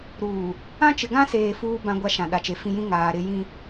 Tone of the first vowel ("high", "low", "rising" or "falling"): low